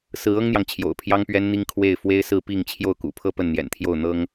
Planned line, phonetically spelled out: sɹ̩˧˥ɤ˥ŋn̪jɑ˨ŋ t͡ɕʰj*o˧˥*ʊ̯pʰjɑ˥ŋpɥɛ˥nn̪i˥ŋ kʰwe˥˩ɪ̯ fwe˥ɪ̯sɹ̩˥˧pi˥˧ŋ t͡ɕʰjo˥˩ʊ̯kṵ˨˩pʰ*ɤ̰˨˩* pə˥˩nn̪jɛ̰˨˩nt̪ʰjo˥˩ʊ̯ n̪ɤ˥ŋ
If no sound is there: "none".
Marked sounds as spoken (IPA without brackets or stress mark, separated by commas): o̰˨˩, ɤ˥˧